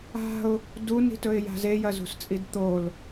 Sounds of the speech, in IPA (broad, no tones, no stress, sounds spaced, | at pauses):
a̤ ʊ̯ | d u n i̤ t ɵ ɪ̯ j a̤ z e j ɐ z ṳ s t͡sʼ i d t̪ o l